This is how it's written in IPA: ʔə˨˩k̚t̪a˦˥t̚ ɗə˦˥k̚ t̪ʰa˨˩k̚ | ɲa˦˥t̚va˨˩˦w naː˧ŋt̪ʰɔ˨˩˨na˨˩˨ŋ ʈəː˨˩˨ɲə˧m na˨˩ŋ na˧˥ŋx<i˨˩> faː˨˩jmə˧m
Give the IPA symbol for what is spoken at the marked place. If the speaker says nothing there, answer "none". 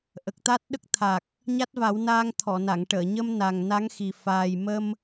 i˨˩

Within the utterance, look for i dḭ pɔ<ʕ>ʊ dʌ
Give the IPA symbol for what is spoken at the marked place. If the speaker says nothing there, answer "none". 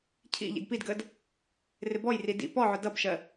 ʕ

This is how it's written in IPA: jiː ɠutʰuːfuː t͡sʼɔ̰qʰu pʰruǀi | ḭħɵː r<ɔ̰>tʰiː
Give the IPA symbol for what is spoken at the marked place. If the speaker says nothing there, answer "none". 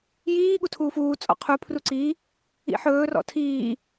ɔ̰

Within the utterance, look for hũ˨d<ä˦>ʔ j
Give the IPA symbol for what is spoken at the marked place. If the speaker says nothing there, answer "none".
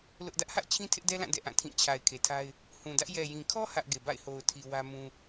ä˦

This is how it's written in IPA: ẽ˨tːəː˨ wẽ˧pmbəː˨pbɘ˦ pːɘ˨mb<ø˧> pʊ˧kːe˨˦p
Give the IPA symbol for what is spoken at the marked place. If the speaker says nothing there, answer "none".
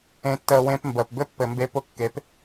e˧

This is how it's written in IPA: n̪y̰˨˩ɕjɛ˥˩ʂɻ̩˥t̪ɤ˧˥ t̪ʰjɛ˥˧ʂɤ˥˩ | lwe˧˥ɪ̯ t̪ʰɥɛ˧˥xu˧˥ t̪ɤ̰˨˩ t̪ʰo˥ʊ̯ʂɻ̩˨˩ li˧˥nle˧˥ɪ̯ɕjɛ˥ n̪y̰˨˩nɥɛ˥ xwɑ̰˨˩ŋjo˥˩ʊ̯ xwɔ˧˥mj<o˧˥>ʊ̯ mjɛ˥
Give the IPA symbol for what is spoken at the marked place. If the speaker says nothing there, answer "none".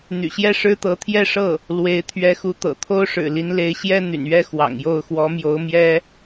o˧˥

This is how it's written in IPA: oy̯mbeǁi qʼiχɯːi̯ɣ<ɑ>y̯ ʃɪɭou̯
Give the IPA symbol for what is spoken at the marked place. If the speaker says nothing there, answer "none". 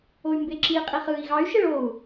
ɑ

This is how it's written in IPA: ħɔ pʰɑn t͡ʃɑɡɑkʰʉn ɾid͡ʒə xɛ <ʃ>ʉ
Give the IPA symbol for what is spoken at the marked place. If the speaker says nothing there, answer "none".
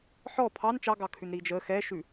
ʃ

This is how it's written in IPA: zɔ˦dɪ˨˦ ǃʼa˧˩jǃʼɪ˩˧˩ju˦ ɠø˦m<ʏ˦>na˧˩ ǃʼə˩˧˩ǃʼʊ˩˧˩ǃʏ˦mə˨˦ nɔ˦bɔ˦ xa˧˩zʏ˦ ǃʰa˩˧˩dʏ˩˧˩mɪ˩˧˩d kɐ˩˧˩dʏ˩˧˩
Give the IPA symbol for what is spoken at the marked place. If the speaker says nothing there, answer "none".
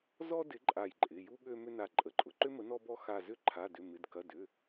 ʏ˦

